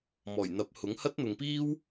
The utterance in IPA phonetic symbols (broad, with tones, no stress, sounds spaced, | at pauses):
m ɔː˨˩ j n̪ ɐ˨˥ p̚ h ʊ˨˥ ŋ h ɐ˥ t̚ n̪ ʊ˨ ŋ p iː˥ w